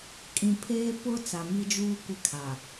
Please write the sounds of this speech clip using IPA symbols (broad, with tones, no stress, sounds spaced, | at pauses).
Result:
kʼ ĩ˨ pʰ eː˦ p ʊ˦ t͡s a˨ m i˦ d͡ʒ uː˦ kʷ ɪ˦ kʰ a˨